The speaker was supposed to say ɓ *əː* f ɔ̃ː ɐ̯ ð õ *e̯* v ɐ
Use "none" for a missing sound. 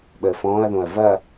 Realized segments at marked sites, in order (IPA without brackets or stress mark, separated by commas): əː, ɐ̯